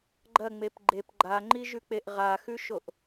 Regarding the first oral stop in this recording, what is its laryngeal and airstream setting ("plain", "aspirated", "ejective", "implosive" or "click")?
click